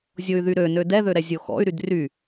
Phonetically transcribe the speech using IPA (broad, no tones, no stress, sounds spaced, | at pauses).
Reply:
zʲ o y̯ ð y ɾ ø n ø d ɛ ð ø ɾ ɛ zʲ o x ɔ̰ y̯ ɾ y d r y